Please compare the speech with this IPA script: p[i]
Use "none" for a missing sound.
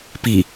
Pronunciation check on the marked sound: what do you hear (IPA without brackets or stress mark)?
i